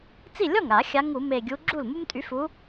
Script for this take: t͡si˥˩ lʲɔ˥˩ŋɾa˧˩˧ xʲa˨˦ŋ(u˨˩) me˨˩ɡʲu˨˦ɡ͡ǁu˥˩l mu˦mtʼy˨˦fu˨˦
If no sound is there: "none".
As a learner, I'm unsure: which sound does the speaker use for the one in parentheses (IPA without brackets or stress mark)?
u˧˩˧